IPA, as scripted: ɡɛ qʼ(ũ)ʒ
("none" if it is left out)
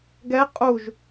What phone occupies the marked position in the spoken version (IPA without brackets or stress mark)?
u